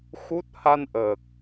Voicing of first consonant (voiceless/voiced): voiceless